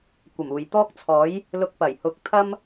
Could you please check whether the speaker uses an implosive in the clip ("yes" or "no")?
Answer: no